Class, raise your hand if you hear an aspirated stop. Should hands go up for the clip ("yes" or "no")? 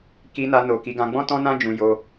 no